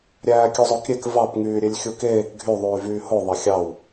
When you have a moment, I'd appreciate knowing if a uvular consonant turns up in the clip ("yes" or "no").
no